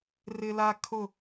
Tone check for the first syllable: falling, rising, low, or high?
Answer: high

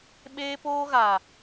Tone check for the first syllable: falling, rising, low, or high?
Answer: high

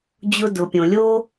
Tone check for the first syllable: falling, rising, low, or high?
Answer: high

